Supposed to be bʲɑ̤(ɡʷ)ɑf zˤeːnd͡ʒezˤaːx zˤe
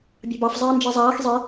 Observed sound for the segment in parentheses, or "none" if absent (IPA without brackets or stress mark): b